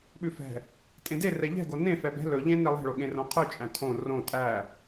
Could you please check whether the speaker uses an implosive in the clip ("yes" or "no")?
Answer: yes